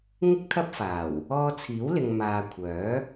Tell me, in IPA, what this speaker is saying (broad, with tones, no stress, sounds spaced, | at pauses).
ŋ ɪ˥ k̚ t̪ʰ ɐ˥ p̚ f aː˨˩ w | ɔː˧ t͡sʰ iː˨˥ w l ɪ˨ ŋ m aː˨ kʷʰ œː˨˥